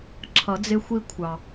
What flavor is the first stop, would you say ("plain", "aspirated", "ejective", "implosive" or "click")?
click